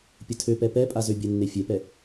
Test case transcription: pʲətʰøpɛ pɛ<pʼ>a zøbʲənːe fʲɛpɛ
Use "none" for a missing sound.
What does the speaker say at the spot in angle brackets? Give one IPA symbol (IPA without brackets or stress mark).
pʼ